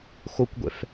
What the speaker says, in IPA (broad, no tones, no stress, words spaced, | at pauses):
xokʷɡʷɛ̰f